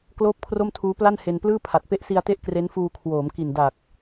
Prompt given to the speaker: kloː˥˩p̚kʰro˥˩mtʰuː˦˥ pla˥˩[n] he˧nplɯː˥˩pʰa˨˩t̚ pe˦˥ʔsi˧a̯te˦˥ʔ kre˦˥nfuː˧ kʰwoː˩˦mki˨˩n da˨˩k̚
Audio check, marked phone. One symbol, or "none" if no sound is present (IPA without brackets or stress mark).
n